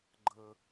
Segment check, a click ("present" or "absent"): present